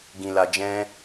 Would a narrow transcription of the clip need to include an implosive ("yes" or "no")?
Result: no